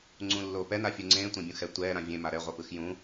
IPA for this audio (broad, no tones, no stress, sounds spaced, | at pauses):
ŋ͡ǀ ũ lː oː p ɛ n a fʲ u ŋ͡ǀ ẽː tʷ ẽ bʲ ũ x ɛ tʷ ɛː ɾ ã vʲ ẽ m a ɾ ɛ ʁʷ ʌ p ɯ x j ũ